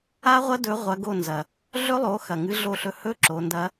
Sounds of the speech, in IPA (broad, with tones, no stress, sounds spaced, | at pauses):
a˦˥ ʁʷ ɐ˦˥ d ɵ˨˦ ʁʷ ɐ˨˦ ɡ o˦˨ n z ɐ˩ | ɮ ɵ˦˥ lˠ o˨˦ x ɐ˩ ŋ ɨ˨˦ ɮ o˦˨ ɬ ɵ˦˨ h ɵ˦˥ ǁ o˨˦ n d ɐ˦˥